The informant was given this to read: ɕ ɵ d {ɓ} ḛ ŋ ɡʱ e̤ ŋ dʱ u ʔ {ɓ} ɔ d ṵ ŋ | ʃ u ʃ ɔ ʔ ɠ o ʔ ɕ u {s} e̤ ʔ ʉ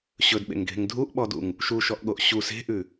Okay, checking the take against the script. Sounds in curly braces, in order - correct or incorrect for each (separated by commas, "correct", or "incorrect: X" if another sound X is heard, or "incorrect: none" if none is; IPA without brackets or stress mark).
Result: correct, correct, correct